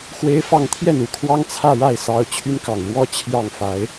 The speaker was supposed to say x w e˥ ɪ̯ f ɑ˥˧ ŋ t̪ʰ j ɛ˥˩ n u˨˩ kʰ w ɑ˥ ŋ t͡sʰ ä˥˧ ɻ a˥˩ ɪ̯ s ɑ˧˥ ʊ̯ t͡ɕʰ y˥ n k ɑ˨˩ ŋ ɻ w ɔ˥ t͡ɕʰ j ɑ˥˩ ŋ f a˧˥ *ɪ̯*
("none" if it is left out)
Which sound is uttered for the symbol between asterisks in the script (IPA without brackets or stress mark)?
ɪ̯